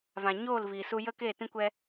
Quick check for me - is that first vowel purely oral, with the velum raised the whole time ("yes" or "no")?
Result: no